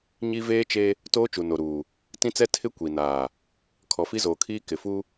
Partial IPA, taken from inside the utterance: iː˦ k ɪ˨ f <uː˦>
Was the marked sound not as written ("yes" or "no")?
yes